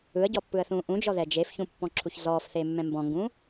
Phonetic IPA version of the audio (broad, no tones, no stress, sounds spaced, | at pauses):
ɯ ə̯ ɟ ɔ pː ɯ ə̯ θ ũː ʔ ũ d͡ʒ ɔ ð ɛ d͡ʒ e f ç ũ pː ɔ̃ ǁʰ u ç z ɔː f θ e mː ɛ̃ m b ɔ̃ ŋ ɡ ũ